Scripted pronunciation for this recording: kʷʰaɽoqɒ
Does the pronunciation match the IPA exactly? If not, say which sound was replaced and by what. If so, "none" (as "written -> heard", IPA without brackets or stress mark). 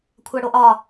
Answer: q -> ʔ